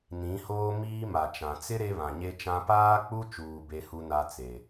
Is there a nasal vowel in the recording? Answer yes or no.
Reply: yes